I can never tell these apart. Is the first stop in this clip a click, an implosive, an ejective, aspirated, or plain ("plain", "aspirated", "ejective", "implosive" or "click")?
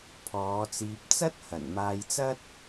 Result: aspirated